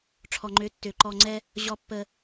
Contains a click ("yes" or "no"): yes